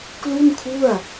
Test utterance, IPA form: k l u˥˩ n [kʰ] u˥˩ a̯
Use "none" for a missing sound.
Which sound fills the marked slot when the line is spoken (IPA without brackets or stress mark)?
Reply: kʰ